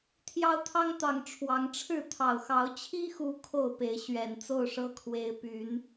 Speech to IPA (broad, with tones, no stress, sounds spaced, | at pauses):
t̪ʰ j ɑ˦ ʊ̯ t̪ʰ ɑ˦ ŋ t̪ ɑ˨˩ ŋ ʈ͡ʂʰ w ɑ˨˦ ŋ ʈ͡ʂʰ ɻ̩˥˨ t̪ʰ ɑ˨˩ ʊ̯ x ɑ˨˦ ʊ̯ t͡ɕʰ i˦ x u˨˦ kʰ o˥˨ ʊ̯ p e˨˦ ɪ̯ ɕ ɥ ɛ˨˩ n t͡s o˥˨ ʊ̯ ʂ ɤ˦ kʰ w e˨˦ ɪ̯ p y˨˦ n